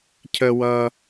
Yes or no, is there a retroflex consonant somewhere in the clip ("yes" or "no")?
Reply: no